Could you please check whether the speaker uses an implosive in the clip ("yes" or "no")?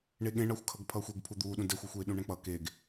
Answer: yes